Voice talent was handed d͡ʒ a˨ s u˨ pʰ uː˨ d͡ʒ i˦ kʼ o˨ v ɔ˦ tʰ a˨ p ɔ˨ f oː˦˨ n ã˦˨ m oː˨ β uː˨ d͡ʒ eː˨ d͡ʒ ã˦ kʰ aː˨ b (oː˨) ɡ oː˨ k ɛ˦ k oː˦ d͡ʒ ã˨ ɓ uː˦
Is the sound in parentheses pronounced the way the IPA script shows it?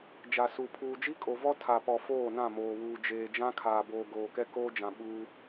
yes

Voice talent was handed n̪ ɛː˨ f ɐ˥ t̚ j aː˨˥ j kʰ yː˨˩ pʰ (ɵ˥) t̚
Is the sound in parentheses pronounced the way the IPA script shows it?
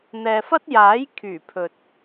no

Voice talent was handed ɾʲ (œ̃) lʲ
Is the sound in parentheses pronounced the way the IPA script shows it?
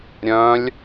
yes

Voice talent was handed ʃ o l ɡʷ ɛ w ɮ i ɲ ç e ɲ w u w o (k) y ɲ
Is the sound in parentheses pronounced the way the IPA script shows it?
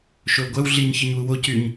no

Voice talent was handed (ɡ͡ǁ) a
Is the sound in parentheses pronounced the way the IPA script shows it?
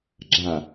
yes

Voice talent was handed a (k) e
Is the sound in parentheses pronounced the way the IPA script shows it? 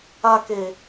yes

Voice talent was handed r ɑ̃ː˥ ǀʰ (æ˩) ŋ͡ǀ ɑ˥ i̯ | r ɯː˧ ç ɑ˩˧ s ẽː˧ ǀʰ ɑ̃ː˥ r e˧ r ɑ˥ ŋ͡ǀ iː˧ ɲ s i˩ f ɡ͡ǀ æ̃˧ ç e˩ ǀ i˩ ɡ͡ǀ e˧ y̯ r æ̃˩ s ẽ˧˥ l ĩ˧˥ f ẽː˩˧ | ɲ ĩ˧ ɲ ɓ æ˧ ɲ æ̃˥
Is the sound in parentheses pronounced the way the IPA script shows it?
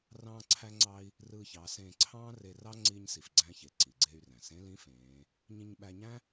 no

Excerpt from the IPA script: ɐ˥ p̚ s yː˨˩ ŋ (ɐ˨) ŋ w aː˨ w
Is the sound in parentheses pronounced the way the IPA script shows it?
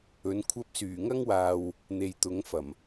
no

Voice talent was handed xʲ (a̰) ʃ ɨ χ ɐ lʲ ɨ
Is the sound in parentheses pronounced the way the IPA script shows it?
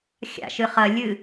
yes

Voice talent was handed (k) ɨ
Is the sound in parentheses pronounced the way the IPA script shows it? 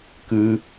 yes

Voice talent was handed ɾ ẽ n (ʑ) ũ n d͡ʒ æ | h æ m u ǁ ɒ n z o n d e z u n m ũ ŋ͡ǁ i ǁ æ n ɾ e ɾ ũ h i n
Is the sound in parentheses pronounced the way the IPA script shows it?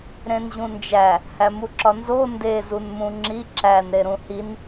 yes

